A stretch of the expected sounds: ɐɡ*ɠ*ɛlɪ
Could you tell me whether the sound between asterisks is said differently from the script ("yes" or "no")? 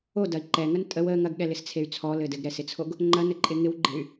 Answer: no